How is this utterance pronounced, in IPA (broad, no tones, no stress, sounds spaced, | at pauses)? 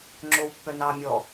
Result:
ŋ͡ǁ o w pː œ n ɑ mʲ ɔ